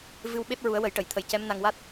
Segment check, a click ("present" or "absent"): absent